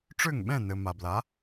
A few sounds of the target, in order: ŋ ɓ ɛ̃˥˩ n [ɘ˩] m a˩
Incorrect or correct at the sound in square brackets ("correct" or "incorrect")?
correct